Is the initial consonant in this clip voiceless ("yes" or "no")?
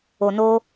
no